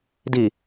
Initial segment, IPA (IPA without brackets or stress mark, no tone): d